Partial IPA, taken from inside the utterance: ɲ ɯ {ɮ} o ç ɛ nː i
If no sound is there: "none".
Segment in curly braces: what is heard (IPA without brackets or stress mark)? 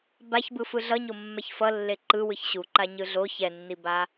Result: ɮ